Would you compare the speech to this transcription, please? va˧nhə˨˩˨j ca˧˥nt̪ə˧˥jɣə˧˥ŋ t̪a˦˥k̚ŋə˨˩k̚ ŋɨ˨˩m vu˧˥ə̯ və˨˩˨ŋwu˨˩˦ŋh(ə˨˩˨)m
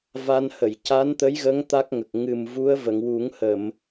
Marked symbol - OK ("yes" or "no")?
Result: yes